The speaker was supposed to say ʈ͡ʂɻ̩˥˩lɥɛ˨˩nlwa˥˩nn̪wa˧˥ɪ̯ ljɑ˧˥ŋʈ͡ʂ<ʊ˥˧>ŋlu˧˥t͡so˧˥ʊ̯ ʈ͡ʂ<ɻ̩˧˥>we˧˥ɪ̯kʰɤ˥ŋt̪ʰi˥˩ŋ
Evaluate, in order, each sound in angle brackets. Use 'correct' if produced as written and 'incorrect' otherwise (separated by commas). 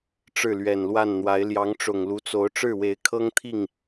incorrect, incorrect